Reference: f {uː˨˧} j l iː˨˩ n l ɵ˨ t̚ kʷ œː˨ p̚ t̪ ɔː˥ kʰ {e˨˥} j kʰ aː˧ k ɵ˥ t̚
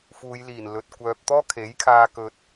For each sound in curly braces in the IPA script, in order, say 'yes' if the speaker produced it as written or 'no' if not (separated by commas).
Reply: yes, yes